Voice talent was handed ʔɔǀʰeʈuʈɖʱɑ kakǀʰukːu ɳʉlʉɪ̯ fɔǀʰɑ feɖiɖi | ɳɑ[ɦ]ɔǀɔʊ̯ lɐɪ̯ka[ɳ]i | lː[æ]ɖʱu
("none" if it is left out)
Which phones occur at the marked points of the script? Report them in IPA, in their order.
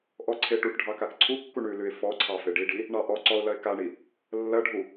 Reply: ʔ, ɳ, ɐ

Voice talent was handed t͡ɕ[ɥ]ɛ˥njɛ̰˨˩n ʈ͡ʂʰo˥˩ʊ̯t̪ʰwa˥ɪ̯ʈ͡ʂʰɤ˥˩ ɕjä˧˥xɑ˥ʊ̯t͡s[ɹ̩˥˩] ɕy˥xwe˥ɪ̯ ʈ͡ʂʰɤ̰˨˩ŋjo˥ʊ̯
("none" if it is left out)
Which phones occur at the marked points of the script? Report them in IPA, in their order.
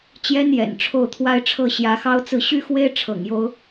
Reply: j, ɹ̩˥˩

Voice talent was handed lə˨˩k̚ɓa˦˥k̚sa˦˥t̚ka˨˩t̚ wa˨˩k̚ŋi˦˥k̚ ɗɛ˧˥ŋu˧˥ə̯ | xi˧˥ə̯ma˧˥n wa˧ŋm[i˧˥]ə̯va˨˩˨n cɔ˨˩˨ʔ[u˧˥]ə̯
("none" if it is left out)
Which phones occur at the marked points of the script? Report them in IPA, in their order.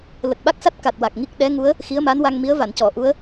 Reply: i˧˥, u˧˥

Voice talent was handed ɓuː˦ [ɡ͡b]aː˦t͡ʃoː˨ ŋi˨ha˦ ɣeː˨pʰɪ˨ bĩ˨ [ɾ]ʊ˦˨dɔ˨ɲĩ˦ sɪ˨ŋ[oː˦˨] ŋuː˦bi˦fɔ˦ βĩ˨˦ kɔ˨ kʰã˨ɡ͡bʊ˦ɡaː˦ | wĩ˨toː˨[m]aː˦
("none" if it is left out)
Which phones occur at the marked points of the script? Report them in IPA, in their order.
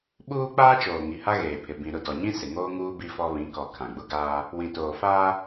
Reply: k͡p, ɾ, oː˦, f

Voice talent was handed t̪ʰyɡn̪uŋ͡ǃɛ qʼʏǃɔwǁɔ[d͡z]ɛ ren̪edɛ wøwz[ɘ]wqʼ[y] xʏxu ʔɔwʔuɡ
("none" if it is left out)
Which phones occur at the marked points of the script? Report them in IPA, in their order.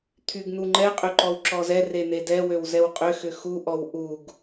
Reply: z, ɛ, ʏ

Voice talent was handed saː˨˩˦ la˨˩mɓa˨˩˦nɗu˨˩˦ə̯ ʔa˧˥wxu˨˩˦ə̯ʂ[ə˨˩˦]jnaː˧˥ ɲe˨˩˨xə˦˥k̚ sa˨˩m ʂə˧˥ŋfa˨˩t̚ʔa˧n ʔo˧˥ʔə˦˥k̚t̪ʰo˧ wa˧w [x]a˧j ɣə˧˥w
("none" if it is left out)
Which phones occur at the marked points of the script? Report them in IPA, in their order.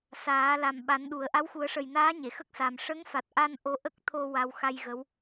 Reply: ə˨˩, x

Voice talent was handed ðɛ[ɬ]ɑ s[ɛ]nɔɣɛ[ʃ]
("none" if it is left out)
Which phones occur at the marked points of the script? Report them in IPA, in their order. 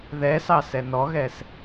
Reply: s, ɛ, s

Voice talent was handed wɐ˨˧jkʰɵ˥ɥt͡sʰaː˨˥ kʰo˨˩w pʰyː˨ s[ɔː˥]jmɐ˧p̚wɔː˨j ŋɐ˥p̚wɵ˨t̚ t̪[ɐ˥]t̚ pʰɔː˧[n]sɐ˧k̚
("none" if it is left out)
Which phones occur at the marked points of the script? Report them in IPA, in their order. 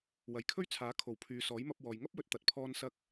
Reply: ɔː˨˥, ɐ˨˥, n

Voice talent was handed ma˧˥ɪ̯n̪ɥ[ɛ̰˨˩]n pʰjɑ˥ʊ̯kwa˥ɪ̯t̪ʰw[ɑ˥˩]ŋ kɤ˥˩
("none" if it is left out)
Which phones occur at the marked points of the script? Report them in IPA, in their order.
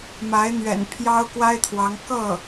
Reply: ɛ̰˨˩, ɑ˧˥

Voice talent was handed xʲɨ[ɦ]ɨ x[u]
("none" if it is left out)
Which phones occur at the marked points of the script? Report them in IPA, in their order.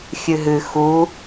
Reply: ɦ, u

